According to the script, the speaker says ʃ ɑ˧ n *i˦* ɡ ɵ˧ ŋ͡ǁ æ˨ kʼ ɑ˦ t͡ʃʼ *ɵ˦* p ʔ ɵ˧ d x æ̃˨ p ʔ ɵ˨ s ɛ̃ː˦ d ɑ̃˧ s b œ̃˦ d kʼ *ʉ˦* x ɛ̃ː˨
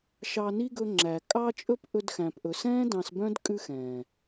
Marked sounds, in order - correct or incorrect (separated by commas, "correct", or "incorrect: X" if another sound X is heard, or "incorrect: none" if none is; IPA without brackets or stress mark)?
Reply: correct, correct, correct